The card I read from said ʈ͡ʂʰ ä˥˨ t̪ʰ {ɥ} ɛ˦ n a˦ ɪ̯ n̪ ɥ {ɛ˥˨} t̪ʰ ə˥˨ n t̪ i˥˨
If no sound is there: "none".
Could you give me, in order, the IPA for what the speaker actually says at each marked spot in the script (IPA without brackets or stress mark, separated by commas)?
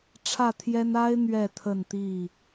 j, ɛ˥˨